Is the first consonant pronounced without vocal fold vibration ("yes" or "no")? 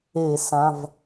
yes